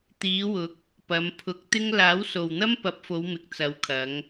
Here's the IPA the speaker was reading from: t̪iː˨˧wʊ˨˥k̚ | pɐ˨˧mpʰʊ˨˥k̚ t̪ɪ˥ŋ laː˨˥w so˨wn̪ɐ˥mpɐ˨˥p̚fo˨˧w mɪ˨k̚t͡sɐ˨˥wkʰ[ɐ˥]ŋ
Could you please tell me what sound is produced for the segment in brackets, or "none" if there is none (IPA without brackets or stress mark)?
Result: ɐ˨˧